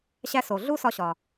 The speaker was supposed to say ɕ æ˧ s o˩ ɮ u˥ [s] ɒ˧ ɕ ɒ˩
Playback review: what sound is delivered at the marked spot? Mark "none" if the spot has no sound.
s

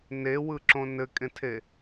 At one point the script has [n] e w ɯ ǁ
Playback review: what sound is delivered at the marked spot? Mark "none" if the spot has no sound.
n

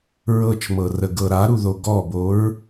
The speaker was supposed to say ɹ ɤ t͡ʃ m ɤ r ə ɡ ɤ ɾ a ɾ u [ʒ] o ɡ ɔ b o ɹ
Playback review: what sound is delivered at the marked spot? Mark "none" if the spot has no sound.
ð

